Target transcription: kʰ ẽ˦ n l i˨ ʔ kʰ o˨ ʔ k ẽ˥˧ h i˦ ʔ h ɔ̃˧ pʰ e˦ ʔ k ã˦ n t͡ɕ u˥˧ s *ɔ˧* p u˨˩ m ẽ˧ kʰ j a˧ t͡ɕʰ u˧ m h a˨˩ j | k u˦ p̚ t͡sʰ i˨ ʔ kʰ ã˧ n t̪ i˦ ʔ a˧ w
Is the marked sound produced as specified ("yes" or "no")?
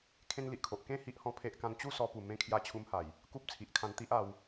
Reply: yes